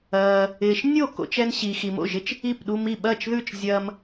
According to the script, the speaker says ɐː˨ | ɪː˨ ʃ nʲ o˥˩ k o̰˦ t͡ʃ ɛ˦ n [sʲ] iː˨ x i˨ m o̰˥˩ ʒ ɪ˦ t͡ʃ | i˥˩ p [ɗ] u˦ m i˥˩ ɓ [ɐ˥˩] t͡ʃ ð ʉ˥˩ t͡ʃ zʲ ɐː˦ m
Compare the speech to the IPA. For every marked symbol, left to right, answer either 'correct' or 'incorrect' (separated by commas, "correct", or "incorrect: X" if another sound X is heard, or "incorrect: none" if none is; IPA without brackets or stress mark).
incorrect: ɕ, correct, correct